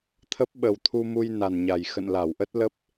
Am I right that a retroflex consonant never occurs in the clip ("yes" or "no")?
yes